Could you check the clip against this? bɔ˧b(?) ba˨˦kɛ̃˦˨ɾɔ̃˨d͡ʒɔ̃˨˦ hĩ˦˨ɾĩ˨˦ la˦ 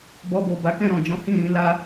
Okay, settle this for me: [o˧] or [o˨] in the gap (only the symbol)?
o˨